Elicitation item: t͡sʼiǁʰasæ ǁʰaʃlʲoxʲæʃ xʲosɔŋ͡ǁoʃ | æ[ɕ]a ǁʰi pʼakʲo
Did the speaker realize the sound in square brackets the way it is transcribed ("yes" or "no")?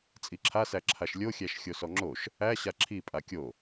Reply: yes